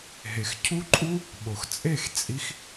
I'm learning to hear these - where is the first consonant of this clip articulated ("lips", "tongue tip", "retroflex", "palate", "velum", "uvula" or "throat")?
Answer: throat